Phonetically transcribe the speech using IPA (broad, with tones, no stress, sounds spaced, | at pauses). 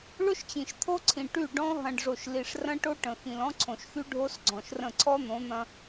ɭ ʊ˦ ʃ t͡ɕ ĩ˨ ʃ t̪ʰ o˦ ǀʰ ĩ˨ ʈ y˦˨ ɖ ɔ̃˦ ɦ ɐ̃˨ ɖ ʐ o˨ ʃ l i˨ ʂ r ɐ̃˦ ʈ o˦ ʈ ə̃˨ x ĩ˨ l ɔ̃˦ ǀʰ õ˨ ʃ x y˦ ɖʱ o˦ s ɡ͡ǀ ɔ̃˨ ʃ r ə̃˦˨ ǀʰ ɔ˦ n̪ õ˨˦ n̪ ɐ̃˦